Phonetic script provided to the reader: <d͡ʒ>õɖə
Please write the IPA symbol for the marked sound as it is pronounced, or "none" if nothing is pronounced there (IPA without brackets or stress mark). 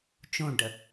t͡ʃ